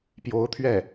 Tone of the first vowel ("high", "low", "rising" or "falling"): rising